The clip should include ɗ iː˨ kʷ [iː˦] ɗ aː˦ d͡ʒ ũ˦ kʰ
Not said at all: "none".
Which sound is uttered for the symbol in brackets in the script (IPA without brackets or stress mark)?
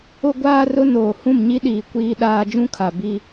iː˦